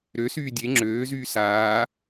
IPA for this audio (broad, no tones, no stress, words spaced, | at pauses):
ɾøsyː dʲe ŋ͡ǁøːzyː saː